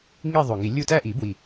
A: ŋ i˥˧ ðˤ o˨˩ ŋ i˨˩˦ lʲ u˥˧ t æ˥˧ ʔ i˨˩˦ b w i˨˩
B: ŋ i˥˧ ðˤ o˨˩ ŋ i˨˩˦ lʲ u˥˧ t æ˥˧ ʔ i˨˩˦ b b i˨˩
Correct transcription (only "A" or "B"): A